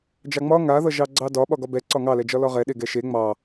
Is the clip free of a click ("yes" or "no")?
no